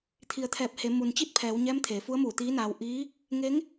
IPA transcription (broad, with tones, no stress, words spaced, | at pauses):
t̪ʰi˩˧ə̯t̪ʰɛː˧˩p̚he˩˧ mu˩nt͡ɕi˥˨t̚pʰɛː˩˧w ɲɛː˧˥mt̪ʰeː˩˧fu˧˥ə̯muː˧˩ t̪iː˧˥naː˧w ʔiː˧˥ | ŋe˧˥ŋ